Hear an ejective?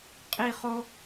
yes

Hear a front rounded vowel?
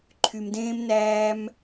yes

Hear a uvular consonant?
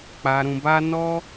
no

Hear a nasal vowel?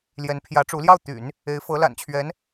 no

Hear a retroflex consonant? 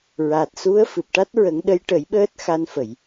yes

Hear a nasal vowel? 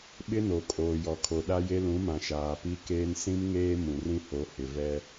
yes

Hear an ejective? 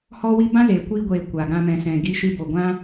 no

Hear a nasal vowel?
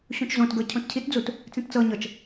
yes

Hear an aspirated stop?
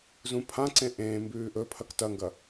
yes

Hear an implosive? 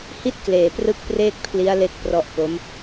no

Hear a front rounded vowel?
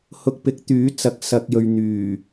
yes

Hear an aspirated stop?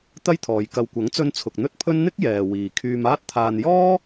yes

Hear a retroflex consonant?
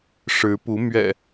yes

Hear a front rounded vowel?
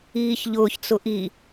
no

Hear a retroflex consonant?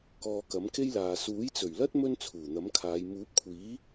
no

